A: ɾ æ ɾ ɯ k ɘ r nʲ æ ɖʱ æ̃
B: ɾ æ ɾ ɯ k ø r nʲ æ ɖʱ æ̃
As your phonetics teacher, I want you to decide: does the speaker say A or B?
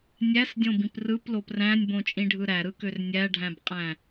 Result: B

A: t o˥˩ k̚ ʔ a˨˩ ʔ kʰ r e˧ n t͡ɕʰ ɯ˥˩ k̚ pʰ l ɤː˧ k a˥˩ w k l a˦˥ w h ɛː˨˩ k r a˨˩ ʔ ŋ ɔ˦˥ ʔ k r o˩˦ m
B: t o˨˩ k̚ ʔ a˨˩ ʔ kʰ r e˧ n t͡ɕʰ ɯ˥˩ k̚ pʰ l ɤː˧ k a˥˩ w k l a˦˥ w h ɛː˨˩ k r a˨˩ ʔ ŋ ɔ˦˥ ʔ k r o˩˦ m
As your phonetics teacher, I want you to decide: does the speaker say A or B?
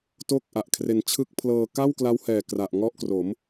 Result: A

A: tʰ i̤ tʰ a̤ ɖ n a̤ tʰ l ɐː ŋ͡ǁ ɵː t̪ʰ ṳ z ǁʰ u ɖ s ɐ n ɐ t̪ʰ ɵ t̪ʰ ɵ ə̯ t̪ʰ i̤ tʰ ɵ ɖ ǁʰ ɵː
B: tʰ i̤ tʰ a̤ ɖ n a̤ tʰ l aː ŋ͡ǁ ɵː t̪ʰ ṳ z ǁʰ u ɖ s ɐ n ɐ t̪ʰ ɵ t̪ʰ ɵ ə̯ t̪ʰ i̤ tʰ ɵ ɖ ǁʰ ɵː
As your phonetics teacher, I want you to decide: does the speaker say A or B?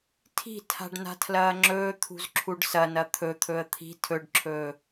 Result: A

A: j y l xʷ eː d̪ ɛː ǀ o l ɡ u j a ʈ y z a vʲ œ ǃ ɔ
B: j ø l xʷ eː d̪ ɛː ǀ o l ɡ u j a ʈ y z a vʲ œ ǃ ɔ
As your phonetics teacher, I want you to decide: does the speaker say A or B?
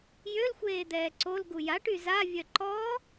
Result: B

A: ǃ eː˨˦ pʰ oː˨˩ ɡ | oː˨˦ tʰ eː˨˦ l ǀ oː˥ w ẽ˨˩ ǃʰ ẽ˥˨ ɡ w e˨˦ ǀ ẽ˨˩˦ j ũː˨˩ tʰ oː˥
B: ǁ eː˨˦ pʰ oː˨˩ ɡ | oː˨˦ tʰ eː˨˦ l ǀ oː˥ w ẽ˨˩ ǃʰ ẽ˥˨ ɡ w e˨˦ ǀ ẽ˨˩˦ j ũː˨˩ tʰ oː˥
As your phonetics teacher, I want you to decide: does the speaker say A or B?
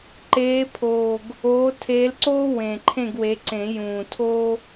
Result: A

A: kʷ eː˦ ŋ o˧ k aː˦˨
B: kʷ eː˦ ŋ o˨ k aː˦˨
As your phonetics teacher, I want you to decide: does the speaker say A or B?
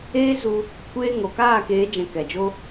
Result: B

